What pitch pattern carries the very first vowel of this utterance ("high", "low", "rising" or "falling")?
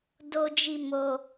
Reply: high